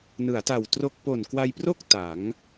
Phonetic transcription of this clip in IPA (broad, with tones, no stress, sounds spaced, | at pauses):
n ɯ˩˦ a̯ t a˨˩ w t r o˥˩ k̚ p o˨˩ n k w a˧ j p r o˥˩ k̚ t a˩˦ ŋ